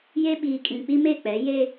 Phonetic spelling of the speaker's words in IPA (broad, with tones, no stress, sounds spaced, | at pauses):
j e˦ ɓ iː˨ kʼ ĩ˨ k͡p i˦ m e˦˨ k͡p ɛ˨˦ j e˦